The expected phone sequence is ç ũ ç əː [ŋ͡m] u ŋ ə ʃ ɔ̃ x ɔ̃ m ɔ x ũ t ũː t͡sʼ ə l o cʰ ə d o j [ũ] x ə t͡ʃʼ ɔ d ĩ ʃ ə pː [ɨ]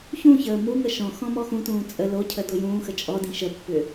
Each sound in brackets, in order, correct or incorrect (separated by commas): incorrect, incorrect, incorrect